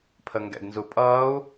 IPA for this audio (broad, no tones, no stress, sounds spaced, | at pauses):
pʰ ə ŋ ɡ ɛ̰ ɡ n z u pʼ ʌː u̯